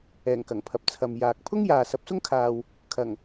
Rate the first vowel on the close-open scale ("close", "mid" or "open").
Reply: mid